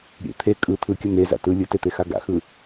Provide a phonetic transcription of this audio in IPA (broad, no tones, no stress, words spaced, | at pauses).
ɾʲḛ t̪ʰe kʼɯ t̪ʰɯkʲə n̪eza̰ tɯ lʲɯtet̪exa ɡa̰xɯ